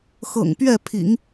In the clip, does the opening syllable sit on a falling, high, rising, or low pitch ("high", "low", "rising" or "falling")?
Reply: low